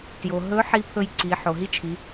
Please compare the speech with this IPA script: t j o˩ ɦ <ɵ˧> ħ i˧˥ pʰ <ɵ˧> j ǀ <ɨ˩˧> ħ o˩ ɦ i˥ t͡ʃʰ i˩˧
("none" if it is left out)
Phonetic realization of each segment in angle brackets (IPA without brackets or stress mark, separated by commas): ɵ˧˥, ɵ˧, i˩˧